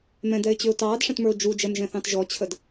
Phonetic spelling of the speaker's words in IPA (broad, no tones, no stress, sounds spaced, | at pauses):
m ɛ̃ d ɛ ɪ̯ t͡ɕ ʏ ʊ̯ t ɑː d ʂ ɛ̃ t m ə˞ ʊ̯ d͡ʒ u d͡ʒ ɛ m ʒ ɛ̃ θ ɑ̃ t ʒ ɔ t͡ɕʰ ə d